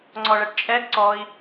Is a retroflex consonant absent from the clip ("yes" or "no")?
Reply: no